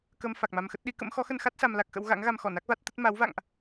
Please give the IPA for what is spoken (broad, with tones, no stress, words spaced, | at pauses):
kə˧m fa˨˩k̚ma˧mxə˦˥t̚ ɗi˨˦kə̰˧˥m xɔ˨˦xə˧nxa˦˥t̚ sa˧mla˦˥k̚xə̰˧˥w ɣa̰˧˥ŋɣa˧mxɔ˧˩ na˦˥k̚va˦˥t̚t̪ə˦˥t̚ ma˨˦wva̰˧˨ŋʔ